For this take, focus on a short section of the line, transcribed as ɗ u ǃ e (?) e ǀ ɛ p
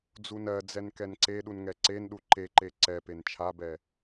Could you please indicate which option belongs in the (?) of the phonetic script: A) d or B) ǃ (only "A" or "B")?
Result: B